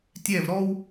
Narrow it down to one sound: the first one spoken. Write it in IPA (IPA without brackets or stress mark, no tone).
tʲ